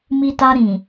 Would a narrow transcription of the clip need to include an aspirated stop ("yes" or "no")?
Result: no